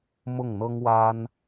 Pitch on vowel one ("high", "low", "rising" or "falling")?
falling